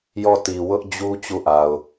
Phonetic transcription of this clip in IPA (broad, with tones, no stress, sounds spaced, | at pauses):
j ɔ˦˨ t i˨ w ʊ˦ ʔ d͡ʑ u˦ t͡ɕ u˦˨ ʔ a˨ ʊ̯